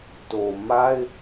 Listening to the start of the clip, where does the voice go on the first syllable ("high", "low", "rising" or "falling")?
low